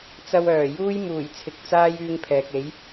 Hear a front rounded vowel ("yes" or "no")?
yes